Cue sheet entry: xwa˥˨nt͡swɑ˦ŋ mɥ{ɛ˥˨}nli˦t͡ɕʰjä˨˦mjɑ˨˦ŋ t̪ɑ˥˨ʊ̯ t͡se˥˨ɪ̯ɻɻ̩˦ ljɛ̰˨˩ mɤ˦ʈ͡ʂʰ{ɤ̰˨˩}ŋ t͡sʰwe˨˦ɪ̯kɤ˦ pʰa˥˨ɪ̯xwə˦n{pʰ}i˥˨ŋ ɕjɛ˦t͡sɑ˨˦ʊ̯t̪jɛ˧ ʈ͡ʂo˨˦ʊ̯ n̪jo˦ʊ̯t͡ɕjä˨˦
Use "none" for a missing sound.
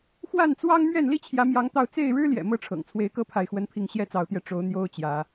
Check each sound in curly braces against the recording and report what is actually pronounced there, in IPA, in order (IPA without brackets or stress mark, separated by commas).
ɛ˥˨, ɤ̰˨˩, pʰ